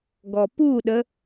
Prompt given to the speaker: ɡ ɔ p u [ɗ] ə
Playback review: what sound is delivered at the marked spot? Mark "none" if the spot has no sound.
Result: ɗ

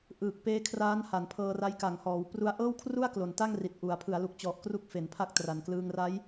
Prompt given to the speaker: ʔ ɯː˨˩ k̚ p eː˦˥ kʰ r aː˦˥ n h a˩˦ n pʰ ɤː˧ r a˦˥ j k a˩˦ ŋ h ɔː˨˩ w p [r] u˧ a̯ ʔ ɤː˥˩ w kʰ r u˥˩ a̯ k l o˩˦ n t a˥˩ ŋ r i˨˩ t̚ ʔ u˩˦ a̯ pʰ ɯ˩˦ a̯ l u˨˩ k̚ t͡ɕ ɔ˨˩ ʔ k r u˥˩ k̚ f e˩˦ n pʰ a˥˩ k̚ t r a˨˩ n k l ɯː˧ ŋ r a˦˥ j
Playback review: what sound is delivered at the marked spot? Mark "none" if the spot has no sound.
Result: r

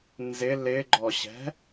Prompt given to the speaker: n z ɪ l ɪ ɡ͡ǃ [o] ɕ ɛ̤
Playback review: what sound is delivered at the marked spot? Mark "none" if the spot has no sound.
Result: ɔ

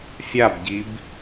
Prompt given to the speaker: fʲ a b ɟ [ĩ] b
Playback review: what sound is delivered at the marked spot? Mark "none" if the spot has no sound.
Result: i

